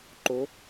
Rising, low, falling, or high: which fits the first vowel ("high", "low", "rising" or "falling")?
rising